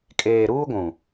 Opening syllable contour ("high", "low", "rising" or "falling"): low